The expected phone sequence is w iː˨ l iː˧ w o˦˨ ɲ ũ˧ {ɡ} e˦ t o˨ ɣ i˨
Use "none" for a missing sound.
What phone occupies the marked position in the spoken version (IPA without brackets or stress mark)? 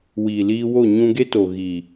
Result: ɡ